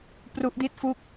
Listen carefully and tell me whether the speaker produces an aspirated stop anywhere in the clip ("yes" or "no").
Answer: no